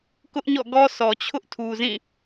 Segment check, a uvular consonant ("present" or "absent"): absent